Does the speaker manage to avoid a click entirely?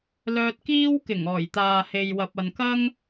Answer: yes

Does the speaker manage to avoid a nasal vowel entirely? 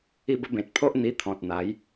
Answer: no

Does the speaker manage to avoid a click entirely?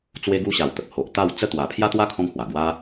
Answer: yes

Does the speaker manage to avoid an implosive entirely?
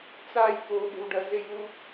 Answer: no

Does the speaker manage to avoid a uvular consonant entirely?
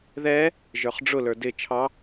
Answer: no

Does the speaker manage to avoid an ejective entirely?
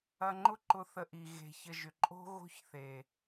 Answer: no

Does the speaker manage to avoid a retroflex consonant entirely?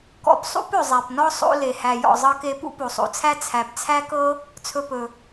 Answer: yes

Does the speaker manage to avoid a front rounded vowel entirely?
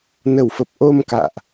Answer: yes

